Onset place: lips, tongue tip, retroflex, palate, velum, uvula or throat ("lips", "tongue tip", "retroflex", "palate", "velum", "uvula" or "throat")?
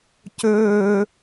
palate